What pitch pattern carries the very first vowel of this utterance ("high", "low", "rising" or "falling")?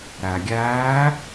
low